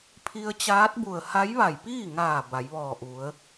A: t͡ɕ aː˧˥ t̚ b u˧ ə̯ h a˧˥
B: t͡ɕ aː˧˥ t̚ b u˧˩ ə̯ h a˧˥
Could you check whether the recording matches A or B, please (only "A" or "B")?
B